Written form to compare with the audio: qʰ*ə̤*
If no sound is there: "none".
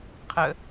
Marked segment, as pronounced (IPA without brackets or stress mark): ə